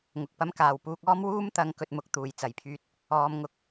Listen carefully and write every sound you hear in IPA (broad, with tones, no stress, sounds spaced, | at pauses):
ŋ ʊ˨ k̚ p ɐ˥ m k aː˨ w p uː˥ k̚ ɔː˥ m w uː˥ m t̪ ɐ˨˧ ŋ k ɵ˥ t̚ m ʊ˨˥ k̚ t̪ uː˨ j t͡s ɐ˨˧ j pʰ yː˥ t̚ | ɔː˨˧ m ŋ ʊ˨˥ k̚